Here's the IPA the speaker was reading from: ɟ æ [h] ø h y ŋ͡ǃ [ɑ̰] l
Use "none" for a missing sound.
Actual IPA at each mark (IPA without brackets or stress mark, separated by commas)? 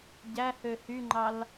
h, ɑ